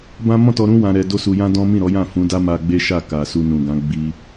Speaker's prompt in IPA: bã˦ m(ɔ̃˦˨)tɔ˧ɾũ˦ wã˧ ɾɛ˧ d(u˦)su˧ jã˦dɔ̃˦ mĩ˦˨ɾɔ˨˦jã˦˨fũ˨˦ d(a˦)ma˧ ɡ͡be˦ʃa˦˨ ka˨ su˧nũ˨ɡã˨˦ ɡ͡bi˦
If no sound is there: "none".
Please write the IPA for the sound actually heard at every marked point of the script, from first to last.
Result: ɔ̃˦˨, o˦, a˦

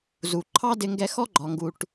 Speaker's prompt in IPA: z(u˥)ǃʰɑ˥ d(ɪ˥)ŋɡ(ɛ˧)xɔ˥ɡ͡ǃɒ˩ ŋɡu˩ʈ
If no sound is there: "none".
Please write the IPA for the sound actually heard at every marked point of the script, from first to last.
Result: u˩, ɪ˧, ɛ˧

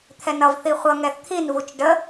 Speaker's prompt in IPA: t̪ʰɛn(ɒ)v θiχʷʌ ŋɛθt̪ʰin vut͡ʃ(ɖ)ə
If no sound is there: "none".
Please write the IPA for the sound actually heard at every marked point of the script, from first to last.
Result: ʌ, ɖ

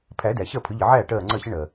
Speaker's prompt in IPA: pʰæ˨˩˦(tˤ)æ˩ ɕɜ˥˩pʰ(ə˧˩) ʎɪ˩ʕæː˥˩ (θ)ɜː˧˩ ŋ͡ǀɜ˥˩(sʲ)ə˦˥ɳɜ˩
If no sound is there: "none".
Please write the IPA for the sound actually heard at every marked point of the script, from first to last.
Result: d, ə˨˩˦, ʈ, ɕ

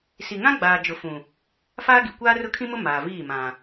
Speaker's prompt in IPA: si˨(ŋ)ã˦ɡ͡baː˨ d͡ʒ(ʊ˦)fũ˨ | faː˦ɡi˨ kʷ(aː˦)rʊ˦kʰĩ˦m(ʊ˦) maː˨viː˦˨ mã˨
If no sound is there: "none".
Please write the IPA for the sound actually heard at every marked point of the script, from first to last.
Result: ŋ, ʊ˨, aː˦, ʊ˦

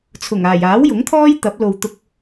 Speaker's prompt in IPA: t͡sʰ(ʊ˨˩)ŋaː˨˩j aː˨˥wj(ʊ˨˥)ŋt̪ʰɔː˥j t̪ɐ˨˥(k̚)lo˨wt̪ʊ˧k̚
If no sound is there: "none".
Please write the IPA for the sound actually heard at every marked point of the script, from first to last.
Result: ʊ˨˩, ʊ˨˥, p̚

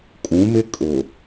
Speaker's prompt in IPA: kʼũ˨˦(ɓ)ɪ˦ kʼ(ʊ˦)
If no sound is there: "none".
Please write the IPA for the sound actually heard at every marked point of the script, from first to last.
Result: m, ʊ˨

